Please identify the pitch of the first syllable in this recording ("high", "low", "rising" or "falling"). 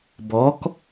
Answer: rising